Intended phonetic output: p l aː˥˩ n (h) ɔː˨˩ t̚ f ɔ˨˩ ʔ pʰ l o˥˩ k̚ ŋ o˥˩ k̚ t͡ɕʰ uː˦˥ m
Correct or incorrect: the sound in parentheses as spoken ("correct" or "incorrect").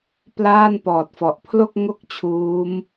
incorrect